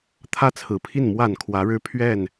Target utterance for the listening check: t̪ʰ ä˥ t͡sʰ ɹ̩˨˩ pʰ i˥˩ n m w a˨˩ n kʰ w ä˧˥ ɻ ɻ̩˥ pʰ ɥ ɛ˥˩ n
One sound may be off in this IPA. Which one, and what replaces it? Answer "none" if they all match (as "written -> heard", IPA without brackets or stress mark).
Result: none